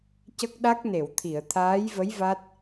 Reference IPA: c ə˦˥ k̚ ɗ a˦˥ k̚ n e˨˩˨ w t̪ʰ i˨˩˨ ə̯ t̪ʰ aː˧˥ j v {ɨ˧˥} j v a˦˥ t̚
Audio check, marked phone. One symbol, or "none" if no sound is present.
ə˧˥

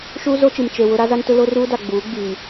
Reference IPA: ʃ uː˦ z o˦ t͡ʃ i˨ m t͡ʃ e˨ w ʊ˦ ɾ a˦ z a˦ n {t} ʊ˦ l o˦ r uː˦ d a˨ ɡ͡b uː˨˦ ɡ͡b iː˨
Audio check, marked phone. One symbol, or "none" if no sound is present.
t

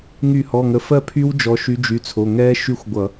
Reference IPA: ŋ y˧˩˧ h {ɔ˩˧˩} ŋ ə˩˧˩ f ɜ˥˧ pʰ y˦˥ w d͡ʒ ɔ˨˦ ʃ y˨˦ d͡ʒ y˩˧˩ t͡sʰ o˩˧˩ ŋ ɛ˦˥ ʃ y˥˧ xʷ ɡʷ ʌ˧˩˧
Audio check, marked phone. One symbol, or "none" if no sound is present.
ɔ˩˧˩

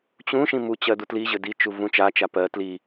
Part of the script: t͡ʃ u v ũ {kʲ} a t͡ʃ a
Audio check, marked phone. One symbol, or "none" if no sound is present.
t͡ʃ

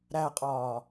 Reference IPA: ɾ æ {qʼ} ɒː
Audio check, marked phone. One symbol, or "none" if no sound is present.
qʼ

